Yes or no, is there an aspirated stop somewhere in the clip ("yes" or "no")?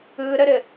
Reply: no